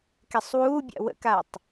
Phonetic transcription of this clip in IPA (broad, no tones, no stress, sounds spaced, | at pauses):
k ɛ sˤ w uː bʲ a̰ w ə̰ k a tˤ